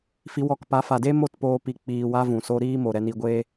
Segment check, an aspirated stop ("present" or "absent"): absent